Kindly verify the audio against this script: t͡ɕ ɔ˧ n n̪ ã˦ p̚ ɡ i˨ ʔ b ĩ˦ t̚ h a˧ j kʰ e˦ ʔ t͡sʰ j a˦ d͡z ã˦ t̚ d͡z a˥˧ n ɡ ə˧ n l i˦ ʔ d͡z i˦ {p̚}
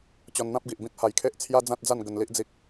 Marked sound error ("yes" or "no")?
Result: yes